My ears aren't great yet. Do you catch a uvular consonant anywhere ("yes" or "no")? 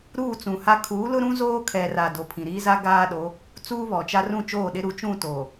no